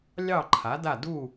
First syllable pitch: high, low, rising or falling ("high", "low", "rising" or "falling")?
falling